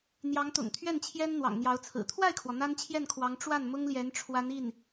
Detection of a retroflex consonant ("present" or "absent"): present